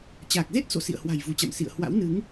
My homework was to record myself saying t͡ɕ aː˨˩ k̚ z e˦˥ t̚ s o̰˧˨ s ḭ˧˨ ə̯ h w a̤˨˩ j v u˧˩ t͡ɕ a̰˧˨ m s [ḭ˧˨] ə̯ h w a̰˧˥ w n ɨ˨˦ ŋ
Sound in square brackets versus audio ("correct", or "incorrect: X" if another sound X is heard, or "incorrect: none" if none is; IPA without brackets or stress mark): correct